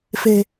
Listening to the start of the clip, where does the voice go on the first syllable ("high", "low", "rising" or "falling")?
low